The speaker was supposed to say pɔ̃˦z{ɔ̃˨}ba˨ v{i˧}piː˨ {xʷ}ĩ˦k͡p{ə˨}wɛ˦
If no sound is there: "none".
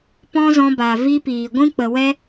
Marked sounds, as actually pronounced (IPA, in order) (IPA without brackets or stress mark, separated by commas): ɔ̃˧, i˧, ɡʷ, ə˨